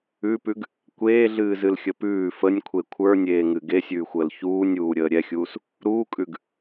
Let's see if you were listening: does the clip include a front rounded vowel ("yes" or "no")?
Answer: no